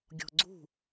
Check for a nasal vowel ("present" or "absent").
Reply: absent